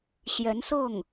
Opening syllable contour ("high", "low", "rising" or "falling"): rising